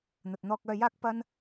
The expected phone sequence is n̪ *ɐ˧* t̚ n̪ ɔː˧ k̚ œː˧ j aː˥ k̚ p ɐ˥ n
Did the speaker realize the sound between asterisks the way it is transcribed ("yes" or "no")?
no